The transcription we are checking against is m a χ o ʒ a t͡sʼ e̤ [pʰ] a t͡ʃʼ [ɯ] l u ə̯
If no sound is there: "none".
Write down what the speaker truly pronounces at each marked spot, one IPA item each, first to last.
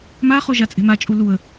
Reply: m, u

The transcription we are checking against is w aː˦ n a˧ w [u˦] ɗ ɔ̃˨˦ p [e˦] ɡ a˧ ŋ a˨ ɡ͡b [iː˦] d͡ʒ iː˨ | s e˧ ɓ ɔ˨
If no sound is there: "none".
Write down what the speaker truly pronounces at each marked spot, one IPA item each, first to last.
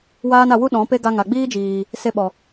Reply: u˦, e˦, iː˦

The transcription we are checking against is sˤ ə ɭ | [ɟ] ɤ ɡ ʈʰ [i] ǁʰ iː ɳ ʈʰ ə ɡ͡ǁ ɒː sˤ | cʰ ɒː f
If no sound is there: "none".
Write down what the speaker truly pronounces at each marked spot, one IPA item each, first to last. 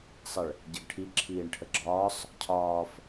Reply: ɟ, i

